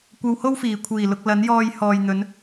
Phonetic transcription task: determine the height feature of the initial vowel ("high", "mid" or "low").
low